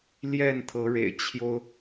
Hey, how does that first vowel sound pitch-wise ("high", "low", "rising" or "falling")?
falling